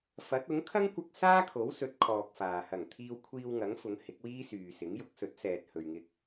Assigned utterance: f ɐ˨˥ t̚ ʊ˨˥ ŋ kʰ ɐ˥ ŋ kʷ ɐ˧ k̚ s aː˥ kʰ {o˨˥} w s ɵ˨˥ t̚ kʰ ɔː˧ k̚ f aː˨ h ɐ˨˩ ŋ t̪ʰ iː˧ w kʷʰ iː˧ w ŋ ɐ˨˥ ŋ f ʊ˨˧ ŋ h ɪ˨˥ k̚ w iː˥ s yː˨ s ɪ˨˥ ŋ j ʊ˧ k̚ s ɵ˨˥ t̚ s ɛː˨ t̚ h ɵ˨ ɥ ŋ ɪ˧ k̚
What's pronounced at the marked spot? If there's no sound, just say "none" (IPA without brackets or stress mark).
o˨˥